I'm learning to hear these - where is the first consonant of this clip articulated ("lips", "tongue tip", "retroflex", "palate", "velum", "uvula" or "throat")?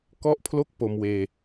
velum